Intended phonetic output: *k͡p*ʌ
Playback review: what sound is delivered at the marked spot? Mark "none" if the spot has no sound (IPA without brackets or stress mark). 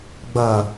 ɡ͡b